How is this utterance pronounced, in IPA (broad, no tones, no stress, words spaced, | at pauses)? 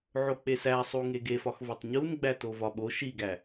ʕok͡pesæ sˤuŋeɡefɒx vɒtˤɲunɡ͡bæ tovɒɓo ʃiɡæ